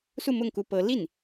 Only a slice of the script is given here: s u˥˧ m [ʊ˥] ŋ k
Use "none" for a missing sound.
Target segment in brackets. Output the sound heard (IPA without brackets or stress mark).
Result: ʊ˥˩